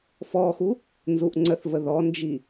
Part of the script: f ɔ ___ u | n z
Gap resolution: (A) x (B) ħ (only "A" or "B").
A